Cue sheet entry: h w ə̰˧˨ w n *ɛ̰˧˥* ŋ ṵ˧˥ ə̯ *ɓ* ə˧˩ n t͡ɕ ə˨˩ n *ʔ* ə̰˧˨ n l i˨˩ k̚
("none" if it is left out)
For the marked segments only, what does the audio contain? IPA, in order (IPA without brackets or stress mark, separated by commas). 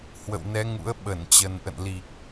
ɛ˨˦, ɓ, ʔ